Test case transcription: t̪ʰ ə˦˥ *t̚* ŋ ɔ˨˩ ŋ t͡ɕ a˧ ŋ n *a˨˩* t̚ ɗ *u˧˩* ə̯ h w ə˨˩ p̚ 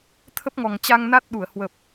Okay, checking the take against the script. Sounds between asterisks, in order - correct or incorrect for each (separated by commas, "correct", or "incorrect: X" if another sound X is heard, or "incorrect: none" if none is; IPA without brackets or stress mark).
incorrect: p̚, incorrect: a˦˥, correct